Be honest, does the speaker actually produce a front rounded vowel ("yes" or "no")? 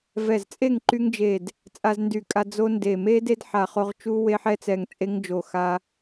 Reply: yes